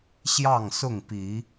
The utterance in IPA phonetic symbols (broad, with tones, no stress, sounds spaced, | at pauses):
ɕ j ɑ˥˨ ŋ s ʊ˥˨ ŋ p i˨˦